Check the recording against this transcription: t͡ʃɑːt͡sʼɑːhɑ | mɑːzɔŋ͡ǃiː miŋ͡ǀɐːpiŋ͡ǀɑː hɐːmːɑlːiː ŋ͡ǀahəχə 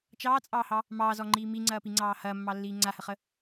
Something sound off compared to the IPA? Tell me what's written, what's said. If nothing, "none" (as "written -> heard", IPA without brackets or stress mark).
none